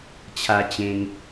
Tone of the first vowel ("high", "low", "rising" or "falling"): high